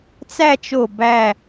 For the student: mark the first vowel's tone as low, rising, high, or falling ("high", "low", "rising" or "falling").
falling